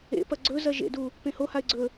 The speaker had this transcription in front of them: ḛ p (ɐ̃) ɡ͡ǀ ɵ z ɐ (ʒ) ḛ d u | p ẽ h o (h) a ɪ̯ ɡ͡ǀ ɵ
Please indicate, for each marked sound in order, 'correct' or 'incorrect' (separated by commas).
incorrect, correct, correct